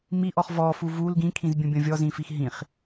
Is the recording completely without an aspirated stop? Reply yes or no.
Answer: no